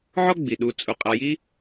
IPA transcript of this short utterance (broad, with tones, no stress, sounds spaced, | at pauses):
ʕ ɔ˥ ɡ͡b i˩ ɗ u˨ t͡sʼ u˨ qʼ a˨ j i˦